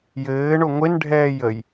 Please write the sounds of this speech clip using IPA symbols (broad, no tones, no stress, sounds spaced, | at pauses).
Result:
j ɘː ɳ o ŋʷ e n ɖʱ ɛː j ə j